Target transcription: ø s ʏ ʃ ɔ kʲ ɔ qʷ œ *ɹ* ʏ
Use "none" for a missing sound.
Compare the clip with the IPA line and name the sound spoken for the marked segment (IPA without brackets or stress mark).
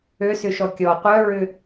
ɹ